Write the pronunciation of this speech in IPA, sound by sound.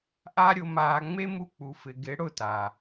ʔa˦ɾʲʊ˧maː˧ ŋ͡me˦mu˧ k͡pu˨fɪ˨ɡɪ˨˦ ɽʊ˦˨ta˨

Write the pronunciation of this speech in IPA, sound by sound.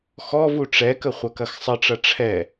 xɔv uʈ͡ʂɛkə χʷɐkɐxsˤəʈ͡ʂɐ ʈ͡ʂʰɛ

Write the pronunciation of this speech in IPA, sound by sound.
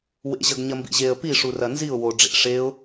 wḛʑɐɡ ɲɐmbḭʑeə̯ piʂurɐ nziʊ̯ wo ɖ͡ʐḛ ʂeʊ̯

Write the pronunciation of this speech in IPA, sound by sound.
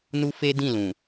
nu˦fe˦dĩ˦˨lũ˨

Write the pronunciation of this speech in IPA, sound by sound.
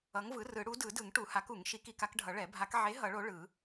ʌ˨˥ŋvɯ˨˥rɯ˨˩˦ ɽu˨˥dɯ˨˩˦dɯ˨˩˦ŋ ʈu˨˩˦ha˨˥ku˨˩˦ŋ ʃi˨˥ki˨˥ka˨˥kɖʱʌ˨˩˦ ɭɛ˨˩˦ bʱa˨˩˦k ʕe˨˥ ɦʌ˨˩˦ɭo˨˥ ɭɯ˨˩˦

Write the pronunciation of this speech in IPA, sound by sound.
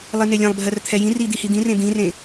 lˠinelʲɛ̃lˠbʱɜr t̪ʰɛjĩri d̪ihid̪ĩrẽ d̪ĩrẽ

